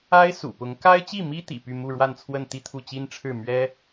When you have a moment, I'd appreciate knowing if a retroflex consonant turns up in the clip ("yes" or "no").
yes